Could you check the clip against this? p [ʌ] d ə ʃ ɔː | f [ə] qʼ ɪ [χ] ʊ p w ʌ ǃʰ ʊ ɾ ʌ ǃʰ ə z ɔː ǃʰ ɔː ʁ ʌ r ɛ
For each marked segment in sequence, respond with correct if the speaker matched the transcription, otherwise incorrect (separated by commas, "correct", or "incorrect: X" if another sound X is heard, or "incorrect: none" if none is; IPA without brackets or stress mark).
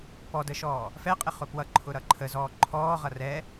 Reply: incorrect: ɔ, incorrect: ɛ, correct